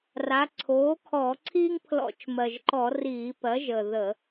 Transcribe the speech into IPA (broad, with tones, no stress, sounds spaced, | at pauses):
r a˩˧ ǀʰ oː˩˥ kʰ ɔː˧˩˧ ǀʰ iː˦ ŋ pʰ l ɔ̰˧˩˧ t͡ʃ m ɜ˨˩ ʒ ǃ ɔ˧˩˧ r iː˧˩˧ p ɜ˩˥ ʒ ə˨˩ ð ə˧˩˧